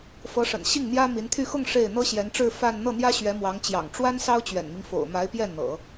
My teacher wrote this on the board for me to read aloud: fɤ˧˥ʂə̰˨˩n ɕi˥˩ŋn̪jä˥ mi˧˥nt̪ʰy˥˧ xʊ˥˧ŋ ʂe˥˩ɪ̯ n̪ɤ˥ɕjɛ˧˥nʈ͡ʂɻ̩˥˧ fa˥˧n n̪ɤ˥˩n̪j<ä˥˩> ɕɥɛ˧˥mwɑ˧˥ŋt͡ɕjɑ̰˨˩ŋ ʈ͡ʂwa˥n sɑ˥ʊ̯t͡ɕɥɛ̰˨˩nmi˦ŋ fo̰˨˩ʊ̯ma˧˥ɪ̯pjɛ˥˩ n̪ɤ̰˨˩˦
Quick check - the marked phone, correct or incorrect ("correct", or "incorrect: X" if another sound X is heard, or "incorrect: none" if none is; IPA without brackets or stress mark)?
incorrect: ä˥